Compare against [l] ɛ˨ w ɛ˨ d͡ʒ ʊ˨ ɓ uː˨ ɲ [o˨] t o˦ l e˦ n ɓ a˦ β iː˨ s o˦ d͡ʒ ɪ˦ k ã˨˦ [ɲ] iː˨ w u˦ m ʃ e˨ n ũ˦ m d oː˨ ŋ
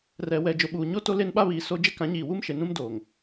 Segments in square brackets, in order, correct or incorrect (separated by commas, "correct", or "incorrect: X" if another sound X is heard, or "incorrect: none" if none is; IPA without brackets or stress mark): incorrect: r, incorrect: o˦, correct